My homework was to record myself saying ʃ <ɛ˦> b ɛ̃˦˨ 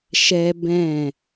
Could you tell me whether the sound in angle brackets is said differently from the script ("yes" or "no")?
no